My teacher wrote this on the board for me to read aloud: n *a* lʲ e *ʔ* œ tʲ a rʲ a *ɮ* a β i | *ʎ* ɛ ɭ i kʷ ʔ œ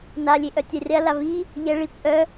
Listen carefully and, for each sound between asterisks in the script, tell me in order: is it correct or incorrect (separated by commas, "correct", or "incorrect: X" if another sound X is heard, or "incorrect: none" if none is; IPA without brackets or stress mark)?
correct, correct, incorrect: l, correct